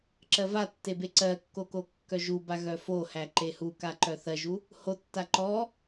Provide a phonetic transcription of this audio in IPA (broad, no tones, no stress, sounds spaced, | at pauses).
ǁ ɜ v a tː e b e ǀ ɜ kː o k o kː œ ʒ u b a ɣ œ f o h æ ǃ e h u k a ǃ œ θ ɜ ʒ u | h o tː a ǃ ɔ